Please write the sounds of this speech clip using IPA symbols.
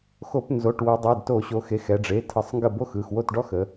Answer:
xo˧˩˧pnzo˩˧˩ʈwo˩˧dˤɛ˩˧˩d to˧˩˧ɕo˩˧xe˩˧˩x ɛ˩˧ɖ͡ʐe˩˧˩tʰə˧˩˧sˤ ŋɡə˥˩bo˥xɯ˩˧˩x wo˥˩tɖɔ˥xə˩˧

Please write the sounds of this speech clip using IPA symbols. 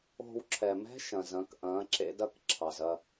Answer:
o̤˦˨w ǁʰɛ˩mɛ̤˦˥ ʃɐ̃˩zɐ̃˩˧k ʔɐ̃ː˩˧ǁḛ˩˧dɐ˦˨k ǁʰɑ˩zɐ˦˨

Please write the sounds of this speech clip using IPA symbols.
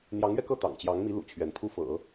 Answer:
n̪jɑ˧˥ŋɥɛ˧kɤ˥˩ t̪ɑ̰˨˩ŋt͡ɕjɑ˧˥ŋmi˧˥ lṵ˨˩t͡ɕʰɥɛ˧˥nt̪ʰu˥˩fɤ̰˨˩˦

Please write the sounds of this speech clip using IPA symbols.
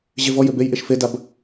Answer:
ʑevɔjʏ bejʔeʃ fedab

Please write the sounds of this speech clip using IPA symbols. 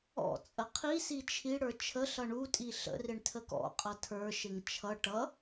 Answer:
ɔ̰t͡sʼə qʰisi t͡ʃʰiɽə˞ t͡ʃʰəɬʌ ɳutʼi ɬə̰rɪɳ tʰəkɔ̰qʼʌ tʰə˞ʃɪŋ t͡ʃʰʌ ʈʌ

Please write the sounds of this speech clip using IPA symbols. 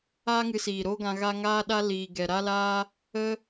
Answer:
aː˦ŋɨ˧siː˨ ɾo˦ɡã˧ ɣa˦ ŋaː˦ɗa˦liː˨ ɡɛ˨ɾa˦laː˦ | ə˦

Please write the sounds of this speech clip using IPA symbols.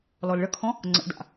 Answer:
lɔlɭəkʰɔ̃ | ŋ͡ǀə̰da̰

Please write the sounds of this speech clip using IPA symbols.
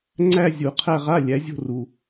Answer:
ŋ͡ǀæ˥˧zʲu˨˩˦qʰæ˥˧ ʁa˧˥˧lʲæ˩˥zʲo̤˥˧ru˨

